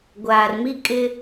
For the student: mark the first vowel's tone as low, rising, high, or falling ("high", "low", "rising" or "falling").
low